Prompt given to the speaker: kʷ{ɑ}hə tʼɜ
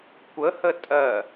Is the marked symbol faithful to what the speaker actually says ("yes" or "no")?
no